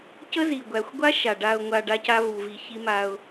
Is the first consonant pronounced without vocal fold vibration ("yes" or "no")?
yes